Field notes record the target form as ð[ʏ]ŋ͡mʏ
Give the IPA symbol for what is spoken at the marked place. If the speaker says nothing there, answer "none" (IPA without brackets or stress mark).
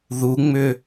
u